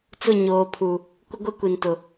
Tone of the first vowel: falling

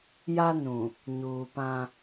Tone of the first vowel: high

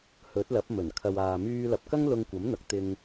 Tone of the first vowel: rising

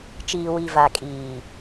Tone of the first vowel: low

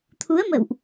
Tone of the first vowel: rising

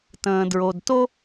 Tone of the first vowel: low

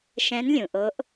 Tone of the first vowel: rising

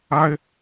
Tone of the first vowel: high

